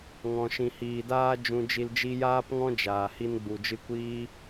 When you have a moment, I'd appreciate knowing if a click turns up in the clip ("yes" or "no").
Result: no